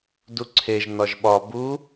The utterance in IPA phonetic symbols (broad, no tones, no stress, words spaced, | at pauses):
duǀʰeʒ nɒʒɓɒ bu